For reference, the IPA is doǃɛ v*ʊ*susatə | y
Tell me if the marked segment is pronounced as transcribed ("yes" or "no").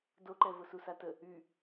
yes